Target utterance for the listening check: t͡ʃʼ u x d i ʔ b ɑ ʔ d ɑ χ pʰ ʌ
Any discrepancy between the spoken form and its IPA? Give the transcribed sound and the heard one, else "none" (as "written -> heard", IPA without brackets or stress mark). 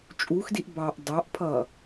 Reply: χ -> ʔ